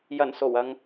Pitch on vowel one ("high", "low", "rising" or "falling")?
low